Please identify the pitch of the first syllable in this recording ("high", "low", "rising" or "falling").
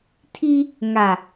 high